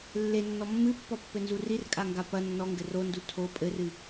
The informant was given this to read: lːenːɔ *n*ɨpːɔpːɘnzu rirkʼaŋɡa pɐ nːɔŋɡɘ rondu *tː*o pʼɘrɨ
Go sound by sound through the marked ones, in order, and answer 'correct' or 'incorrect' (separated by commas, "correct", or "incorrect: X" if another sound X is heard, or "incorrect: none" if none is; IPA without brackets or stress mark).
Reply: incorrect: mː, incorrect: tʰ